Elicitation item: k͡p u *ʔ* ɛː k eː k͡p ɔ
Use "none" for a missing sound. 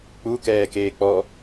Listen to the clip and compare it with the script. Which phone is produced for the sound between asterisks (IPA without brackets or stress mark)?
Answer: k